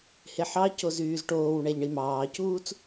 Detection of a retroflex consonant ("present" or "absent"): present